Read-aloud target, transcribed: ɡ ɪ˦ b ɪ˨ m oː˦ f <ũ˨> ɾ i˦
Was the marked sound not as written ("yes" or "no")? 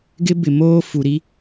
yes